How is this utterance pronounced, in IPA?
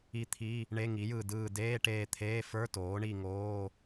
i˦˨t̪ʰi˧˥˧ | ɳe˧˥˧ŋi˩˥jɯ˦˨dɯː˦˨ deː˧˥˧ʈeː˦˨t̪ʰeː˧˥˧ fə˞˧˥˧toː˩˥ɳi˦˨ ŋoː˧˥˧

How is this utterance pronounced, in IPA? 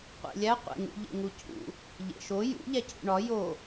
qʷḛlʲæ qʷḛŋṵʎḛ ŋucʰṵ | ʎḛʃo jṵʎæcʰṵ ɳɒ jo

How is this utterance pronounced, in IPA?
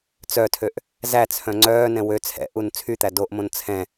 t͡sœtʰøʔ | zæt͡sʰœ̃ ŋ͡ǀœːnɛ̃ wø t͡sʰɛ̰ʔun t͡sʰyt̪æ doʔmõn t͡sʰɛ̃

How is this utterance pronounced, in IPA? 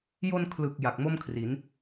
jo˧n kʰlɯ˨˩k̚ ja˨˩k̚mo˥˩mkʰri˩˦n

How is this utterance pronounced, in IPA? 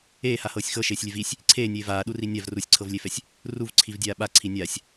eːhahɤːsʲ xɤʃeːsʲlʲɛv isʲ | ǀʰeːnʲeː vaːɗuri nʲav rusʲǀʰɤvlʲefɛsʲ | ruvǀʰivdʲaː ɓaǀʰi nʲasʲ

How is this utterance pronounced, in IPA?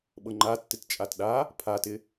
ɓɤŋ͡ǃatːɪt t͡ʃʼatɗa | pʰatɪ

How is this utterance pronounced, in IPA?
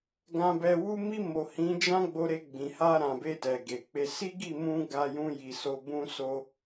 ɡã˧bɛ˧ wu˧mi˧mo˨ hĩ˨˦d͡ʒã˦ɡ͡bo˧ɾe˧ ɡ͡bĩ˨ha˧ ɾã˨be˧ tɛ˨ɡe˨k͡pe˧ si˦ɡi˦˨mũ˧ ɡa˧jũ˧ji˨so˧ bũ˧so˧

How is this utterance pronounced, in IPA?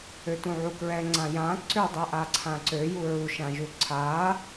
øtũʕukɹɛ ŋ͡ǀãjã ǀødˤøʔa ǀʰãǀøju ɹuʃãʒu ǀʰa

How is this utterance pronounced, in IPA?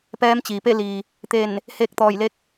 pɛː˧˥mt͡ɕiː˩pe˥˨liː˩ | t̪e˧˩n | he˧˥k̚t̪ɔː˧˩jle˧˥k̚

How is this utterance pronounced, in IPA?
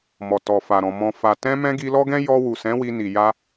mɔ˨tɔ˨fa˨ɾɔ̃˨ mɔ̃˨fa˨ tɛ̃˧mɛ̃˧ ɡi˧lɔ˦ɡɛ̃˦ jɔ˧wu˨sɛ̃˨˦ wi˧ni˨ ja˧

